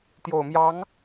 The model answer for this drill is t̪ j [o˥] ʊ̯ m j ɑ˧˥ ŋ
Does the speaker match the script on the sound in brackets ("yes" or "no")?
no